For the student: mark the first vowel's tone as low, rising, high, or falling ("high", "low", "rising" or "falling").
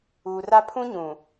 low